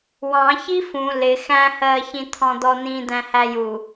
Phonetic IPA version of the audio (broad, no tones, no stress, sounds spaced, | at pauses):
w ɑ̃ ç i f ũ l ɪ x æ̃ h ɜː ç ĩ t̪ʰ ɔ̃ d̪ ɔ n̪ ĩ d̪ æ̃ h æ j u